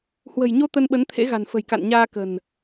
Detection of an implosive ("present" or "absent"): present